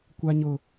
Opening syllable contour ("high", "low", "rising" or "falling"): high